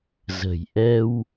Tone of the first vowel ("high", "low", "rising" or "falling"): low